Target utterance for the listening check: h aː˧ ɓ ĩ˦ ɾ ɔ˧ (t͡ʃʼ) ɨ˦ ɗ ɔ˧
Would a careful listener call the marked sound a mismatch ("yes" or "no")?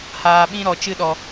yes